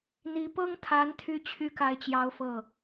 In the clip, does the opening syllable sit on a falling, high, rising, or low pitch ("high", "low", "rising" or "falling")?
rising